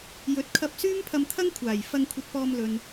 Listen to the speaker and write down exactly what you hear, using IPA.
jɵ˨˥t̚kʰɐ˧p̚ syː˥mpʰɐ˧mt̪ʰɐ˥ŋ kʷʰaː˨˩j fɐ˧ŋkʷʰɐ˧t̚pɔː˧m lɵ˨n

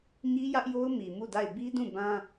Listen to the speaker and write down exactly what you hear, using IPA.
ɲi˦jä˦ʔjo˦ʊ̯ mi˨mu˦˨da˦˨ɪ̯ bi˦dũ˦˨ bã˦

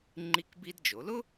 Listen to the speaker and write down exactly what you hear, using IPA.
ŋ͡ǃi˧kbi˧dd͡ʒo˩˧lʊ˥

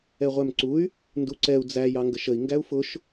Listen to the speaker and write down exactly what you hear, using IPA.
ɛʁʷæmǀuy̯ | nduǀɛu̯ d͡zæ jɑŋɡəʃəi̯ ŋɡæu̯fʊʃ

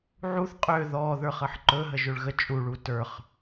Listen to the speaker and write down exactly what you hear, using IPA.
ʕuθ qʼø ðɔ ðə˞χəħǃɵ ɦəʒøɭɣə t͡ʃʼuɭu tə˞χ

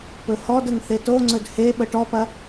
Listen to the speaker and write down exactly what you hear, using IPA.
pɵhɔdəŋ θetoŋ͡ǀɵd heɓə ʈɔpɐ

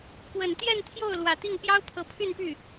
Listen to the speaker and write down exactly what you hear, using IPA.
kwə˨˩nt̪jɛ˥˧nt̪ʰjo˥˩ʊ̯ lwä˨˩t̪i˥˩ŋ pjɑ˥ʊ̯pʰɤ˧˥pʰy˥˧npy˥˩

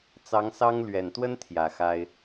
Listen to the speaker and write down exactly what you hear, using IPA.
t͡sɑ˧˥ŋsɑ˥ŋ lɥɛ˨˩nt̪wə˥n t̪ʰjä˨˩xa˥ɪ̯

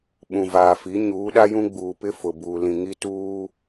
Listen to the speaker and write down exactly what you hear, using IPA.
ɓũ˨vaː˨ fi˨˦ɲuː˨˦ɗa˦jũ˦ ɡ͡buː˨pɪ˦ fʊ˨buː˨ lĩ˨ŋi˦ tuː˦

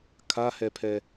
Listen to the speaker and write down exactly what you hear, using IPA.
kʰahɛpʰɛ

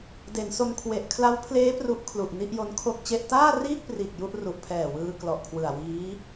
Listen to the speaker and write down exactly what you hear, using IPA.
de˩˦nso˧n kʰwe˨˩ʔkʰla˦˥wpʰleː˦˥ pru˦˥ʔkʰlu˨˩ʔ ni˥˩ʔjo˦˥nkʰo˥˩k̚t͡ɕe˥˩ʔ taː˥˩riː˥˩k̚priː˨˩k̚ ju˥˩ʔ ru˨˩ʔpʰɛː˨˩ wɯː˧klɔ˨˩ʔkʰwɯ˨˩a̯ wiː˦˥

